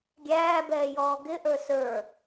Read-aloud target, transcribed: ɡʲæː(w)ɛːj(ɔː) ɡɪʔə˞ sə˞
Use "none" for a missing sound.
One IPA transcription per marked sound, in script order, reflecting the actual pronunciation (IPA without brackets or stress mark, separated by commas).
b, ɔː